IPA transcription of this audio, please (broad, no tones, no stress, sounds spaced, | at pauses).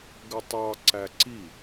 ɡ ə tˤ ɑ ǀ æ ǀ i